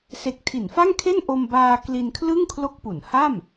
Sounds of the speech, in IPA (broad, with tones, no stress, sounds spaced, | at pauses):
s e˦˥ k̚ tʰ i˩˦ n f a˥˩ ŋ kʰ e˥˩ n ʔ o˧ m b aː˧ k l i˧ n kʰ l ɯ˥˩ ŋ kʰ l o˦˥ k̚ p u˩˦ n h a˥˩ m